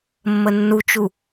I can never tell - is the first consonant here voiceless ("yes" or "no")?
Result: no